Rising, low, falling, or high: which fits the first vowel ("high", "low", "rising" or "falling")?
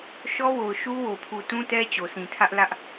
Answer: high